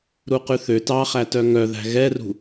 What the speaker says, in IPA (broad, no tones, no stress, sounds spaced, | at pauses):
ɾ u q ʉ θ ø t ɑ χ æ t œ ŋ œ ð æ̤ ɣ ɛ r ṳ